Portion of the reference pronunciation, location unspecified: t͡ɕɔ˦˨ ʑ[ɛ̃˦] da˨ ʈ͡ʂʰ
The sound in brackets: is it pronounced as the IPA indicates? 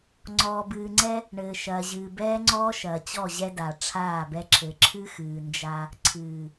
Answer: no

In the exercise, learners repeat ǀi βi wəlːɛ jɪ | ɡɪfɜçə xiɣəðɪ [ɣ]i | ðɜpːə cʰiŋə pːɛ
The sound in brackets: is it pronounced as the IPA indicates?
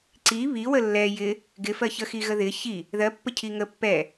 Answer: no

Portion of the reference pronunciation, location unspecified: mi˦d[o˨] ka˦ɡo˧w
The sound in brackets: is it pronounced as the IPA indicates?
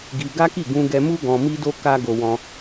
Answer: no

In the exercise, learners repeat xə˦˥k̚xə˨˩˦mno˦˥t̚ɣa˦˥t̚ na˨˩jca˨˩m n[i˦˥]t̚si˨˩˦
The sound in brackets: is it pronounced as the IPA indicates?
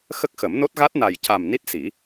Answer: yes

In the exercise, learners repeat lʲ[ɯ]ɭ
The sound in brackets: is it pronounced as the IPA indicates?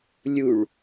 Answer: no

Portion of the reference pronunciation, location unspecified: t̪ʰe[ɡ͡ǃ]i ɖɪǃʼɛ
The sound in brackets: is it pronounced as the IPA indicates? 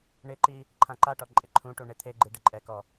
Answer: yes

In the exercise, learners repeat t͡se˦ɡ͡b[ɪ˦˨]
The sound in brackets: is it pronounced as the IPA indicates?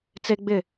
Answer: yes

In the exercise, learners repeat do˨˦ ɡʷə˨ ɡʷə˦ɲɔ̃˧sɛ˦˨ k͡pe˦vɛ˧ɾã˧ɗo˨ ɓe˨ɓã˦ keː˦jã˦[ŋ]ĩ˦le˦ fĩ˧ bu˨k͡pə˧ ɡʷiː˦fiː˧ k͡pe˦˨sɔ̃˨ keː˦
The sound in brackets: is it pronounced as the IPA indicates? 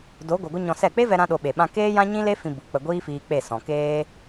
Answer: no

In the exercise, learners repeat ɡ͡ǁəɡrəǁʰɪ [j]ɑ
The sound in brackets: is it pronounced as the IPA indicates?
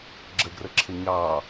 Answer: no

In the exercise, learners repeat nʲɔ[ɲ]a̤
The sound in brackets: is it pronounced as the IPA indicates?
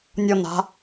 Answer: no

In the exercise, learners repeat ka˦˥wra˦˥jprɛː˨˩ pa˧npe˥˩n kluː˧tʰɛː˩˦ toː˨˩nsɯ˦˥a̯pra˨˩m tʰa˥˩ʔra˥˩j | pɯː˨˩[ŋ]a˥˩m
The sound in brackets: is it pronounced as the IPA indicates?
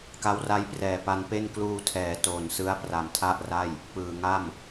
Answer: yes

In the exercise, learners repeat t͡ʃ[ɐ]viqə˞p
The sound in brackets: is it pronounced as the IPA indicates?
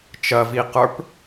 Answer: yes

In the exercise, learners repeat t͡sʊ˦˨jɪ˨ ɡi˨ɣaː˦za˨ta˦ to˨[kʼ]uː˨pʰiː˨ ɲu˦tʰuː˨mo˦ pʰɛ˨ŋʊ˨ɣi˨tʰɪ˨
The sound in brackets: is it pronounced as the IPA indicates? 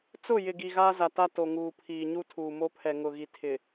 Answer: no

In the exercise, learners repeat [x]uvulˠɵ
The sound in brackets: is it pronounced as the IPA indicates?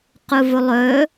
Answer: no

